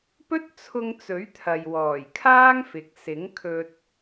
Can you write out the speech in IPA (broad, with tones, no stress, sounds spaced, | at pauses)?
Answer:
p ɵ˥ t̚ t͡sʰ ʊ˧ ŋ t͡s ɵ˨˥ ɥ t̪ʰ ɐ˨ j w ɔː˨˩ j kʰ aː˥ ŋ f ɪ˨ k̚ s ɪ˨˥ ŋ kʰ ɵ˧ t̚